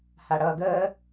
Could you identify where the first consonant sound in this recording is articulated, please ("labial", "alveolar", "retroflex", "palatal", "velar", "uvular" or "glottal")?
glottal